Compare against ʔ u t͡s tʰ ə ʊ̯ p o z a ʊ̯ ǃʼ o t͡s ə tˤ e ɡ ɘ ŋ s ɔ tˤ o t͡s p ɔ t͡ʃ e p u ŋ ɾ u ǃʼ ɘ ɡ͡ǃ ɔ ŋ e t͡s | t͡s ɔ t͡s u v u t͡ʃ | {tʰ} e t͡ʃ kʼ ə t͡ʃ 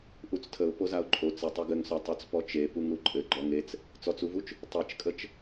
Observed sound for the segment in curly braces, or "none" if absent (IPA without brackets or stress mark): tˤ